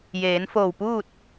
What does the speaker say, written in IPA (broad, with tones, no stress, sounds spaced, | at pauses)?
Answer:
j eː˩˧ n f oː˧˩ w p uː˥˨ t̚